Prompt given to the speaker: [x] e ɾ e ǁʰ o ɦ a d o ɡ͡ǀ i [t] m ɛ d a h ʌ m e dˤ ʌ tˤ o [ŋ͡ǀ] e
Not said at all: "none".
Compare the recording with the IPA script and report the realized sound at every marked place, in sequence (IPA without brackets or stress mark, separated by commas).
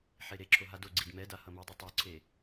ħ, d, ǀʰ